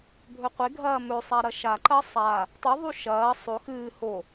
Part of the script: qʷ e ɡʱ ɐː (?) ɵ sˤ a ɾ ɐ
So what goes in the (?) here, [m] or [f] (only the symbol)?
m